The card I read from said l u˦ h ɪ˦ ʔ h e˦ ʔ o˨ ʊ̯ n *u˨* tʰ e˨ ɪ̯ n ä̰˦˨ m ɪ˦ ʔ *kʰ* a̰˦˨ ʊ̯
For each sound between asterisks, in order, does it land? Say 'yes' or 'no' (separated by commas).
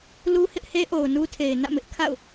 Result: no, yes